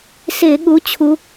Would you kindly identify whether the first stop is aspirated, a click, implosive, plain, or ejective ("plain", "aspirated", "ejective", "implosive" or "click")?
implosive